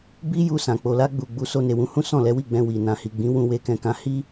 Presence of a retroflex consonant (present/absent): absent